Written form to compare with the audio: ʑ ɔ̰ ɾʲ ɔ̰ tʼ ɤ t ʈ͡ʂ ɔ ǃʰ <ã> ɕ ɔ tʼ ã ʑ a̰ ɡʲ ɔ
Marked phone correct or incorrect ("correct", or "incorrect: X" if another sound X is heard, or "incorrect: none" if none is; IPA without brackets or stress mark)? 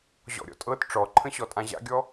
incorrect: ə̃